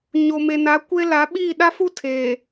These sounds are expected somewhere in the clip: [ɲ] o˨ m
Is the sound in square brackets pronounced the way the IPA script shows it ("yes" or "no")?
yes